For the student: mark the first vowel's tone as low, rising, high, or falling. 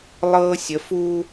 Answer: high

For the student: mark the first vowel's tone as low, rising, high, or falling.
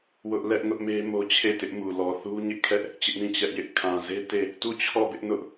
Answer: high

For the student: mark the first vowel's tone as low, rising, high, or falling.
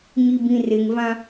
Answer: low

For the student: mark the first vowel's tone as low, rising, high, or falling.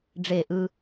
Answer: falling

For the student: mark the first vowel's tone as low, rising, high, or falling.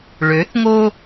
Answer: rising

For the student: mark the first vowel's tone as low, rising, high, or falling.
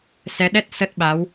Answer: rising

